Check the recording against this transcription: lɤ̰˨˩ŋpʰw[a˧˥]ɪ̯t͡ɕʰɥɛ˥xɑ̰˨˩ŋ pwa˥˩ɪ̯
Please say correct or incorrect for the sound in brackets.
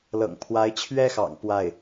correct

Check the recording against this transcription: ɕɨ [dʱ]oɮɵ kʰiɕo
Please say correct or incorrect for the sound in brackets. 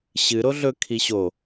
incorrect: ɾ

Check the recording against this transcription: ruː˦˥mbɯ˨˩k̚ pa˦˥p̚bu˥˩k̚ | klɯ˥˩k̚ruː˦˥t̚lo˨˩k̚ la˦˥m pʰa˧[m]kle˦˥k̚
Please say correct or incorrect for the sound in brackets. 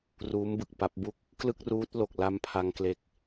incorrect: ŋ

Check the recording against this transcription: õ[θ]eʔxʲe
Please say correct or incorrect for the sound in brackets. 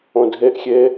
incorrect: dʱ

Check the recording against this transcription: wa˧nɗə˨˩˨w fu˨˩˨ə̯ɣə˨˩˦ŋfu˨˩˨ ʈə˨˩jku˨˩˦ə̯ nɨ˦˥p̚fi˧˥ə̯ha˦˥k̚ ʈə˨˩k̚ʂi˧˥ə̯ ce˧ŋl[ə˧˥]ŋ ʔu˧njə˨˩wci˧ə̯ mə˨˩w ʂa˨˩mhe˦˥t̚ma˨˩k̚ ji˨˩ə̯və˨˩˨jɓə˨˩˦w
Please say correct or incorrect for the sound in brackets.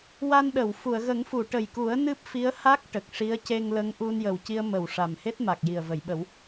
correct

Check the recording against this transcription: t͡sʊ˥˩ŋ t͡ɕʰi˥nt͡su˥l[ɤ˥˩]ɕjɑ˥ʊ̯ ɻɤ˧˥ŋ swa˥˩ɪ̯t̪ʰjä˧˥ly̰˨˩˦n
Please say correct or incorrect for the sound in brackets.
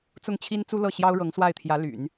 correct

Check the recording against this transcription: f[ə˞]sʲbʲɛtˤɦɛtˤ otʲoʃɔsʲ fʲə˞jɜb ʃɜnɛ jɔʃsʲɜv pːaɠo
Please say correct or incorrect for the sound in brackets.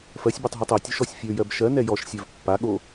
incorrect: ɜ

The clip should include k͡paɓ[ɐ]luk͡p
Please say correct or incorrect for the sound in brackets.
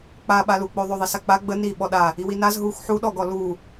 incorrect: a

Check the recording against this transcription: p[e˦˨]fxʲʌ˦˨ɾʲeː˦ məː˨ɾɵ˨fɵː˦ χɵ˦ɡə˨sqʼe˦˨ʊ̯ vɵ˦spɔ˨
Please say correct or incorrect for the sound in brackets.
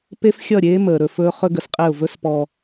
incorrect: e˦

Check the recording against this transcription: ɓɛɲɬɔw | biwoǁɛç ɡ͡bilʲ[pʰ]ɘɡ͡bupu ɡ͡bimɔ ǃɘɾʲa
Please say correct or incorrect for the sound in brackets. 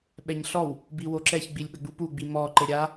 incorrect: ɓ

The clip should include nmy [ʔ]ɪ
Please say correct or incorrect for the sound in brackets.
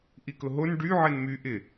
correct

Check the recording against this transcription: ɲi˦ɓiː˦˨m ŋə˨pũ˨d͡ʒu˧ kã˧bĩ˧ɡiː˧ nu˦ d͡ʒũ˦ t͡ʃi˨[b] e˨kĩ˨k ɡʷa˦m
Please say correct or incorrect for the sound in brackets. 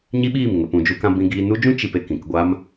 incorrect: p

